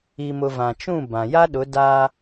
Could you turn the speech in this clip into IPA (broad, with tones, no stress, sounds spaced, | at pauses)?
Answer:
i˨ m ʊ˨ v ã˨ t͡ʃ ũ˦˨ b ã˨ j a˦ ɗ ʊ˨˦ d a˦